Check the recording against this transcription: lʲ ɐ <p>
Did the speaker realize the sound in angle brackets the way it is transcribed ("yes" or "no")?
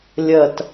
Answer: no